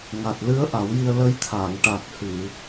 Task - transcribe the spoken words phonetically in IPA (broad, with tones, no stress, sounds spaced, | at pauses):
ŋ a˨˩ t̚ l ɨ˧˥ ə̯ ʔ a˨˩˦ w j i˧ ə̯ l ə˧˥ j t̪ʰ a˨˩˨ ŋ ʈ a˨˩ k̚ h ɨ˨˩˨